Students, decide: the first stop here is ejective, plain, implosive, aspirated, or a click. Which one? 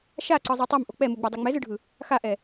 click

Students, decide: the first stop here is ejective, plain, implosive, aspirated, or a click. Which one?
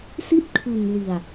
plain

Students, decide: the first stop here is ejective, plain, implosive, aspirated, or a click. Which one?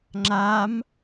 click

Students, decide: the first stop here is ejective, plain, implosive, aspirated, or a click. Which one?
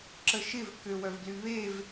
click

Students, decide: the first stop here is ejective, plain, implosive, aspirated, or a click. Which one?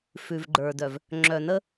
click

